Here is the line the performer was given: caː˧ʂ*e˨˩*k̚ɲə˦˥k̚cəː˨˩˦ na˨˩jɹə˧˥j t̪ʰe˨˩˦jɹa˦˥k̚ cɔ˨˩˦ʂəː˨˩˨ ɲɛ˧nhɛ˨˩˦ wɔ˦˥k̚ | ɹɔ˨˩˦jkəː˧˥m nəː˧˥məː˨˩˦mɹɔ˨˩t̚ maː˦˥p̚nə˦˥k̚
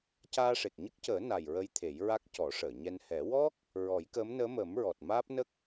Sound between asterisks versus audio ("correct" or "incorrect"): correct